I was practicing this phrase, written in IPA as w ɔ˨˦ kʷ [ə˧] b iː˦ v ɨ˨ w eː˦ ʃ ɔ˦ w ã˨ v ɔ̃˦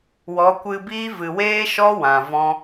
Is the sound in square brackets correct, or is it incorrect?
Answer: incorrect